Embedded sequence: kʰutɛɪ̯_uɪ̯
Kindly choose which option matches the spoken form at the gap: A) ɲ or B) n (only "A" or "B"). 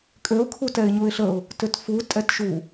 A